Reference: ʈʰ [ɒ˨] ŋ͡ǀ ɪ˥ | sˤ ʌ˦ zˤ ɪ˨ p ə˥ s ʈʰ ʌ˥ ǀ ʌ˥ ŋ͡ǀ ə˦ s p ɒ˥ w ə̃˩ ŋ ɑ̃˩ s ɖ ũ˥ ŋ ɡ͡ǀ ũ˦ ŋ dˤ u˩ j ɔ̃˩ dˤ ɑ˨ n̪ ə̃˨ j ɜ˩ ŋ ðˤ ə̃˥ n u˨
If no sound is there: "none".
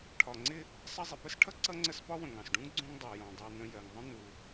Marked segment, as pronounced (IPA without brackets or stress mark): ɒ˨